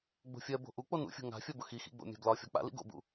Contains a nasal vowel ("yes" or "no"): no